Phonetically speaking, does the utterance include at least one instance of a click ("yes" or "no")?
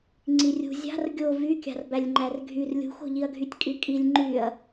yes